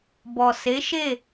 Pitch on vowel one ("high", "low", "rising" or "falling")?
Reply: low